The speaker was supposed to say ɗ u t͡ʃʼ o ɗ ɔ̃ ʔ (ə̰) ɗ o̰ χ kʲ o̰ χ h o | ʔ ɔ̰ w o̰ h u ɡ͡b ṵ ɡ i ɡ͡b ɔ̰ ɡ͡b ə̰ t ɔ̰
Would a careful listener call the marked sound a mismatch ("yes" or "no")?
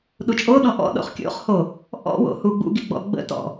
yes